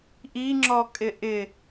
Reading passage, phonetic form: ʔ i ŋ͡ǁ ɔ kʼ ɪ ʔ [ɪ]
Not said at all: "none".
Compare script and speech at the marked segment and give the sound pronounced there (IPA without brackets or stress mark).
ɪ